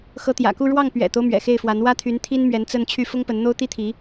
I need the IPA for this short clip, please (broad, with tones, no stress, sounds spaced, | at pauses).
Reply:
x ɤ˧˥ t̪ j ä̰˨˩ k u˥˧ ɻ w ɑ˥˩ ŋ p ɥ ɛ̰˨˩ t̪ o˦ ʊ̯ m ɥ ɛ̰˨˩ x e˥˩ ɪ̯ f w a˧˥ n w ä˥ t̪ʰ y˧˥ n t̪ʰ i˥ n m ɥ ɛ˧˥ n t͡s ə˥˧ n t͡ɕʰ y˥˩ f ʊ˥ ŋ p ə˧˥ n n̪ o˥ ʊ̯ t̪ i˥ t̪ʰ i˧˥